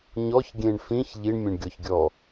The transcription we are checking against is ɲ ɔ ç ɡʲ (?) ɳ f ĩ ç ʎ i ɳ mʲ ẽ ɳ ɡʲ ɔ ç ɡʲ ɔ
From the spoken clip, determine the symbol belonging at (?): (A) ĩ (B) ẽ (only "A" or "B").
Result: B